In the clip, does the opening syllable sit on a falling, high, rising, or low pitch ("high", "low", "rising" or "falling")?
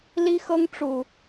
high